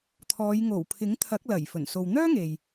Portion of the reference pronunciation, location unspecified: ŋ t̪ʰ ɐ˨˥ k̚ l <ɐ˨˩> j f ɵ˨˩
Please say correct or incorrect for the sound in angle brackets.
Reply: correct